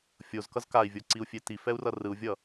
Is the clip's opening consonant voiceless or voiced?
voiceless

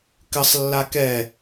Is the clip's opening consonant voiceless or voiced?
voiceless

